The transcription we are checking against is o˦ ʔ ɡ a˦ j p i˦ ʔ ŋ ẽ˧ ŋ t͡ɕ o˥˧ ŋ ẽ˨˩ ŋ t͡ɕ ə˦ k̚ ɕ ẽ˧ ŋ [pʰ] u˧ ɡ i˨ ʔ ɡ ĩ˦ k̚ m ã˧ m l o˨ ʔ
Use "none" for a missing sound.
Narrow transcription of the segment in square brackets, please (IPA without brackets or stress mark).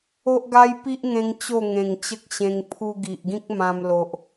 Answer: pʰ